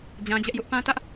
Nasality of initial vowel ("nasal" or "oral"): nasal